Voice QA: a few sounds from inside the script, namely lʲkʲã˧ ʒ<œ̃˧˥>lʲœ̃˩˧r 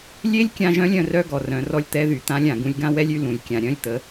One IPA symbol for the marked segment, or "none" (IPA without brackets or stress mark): œ̃˧˥